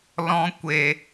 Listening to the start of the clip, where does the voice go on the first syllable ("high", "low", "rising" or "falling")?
high